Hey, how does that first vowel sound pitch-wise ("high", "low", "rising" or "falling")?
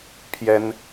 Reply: high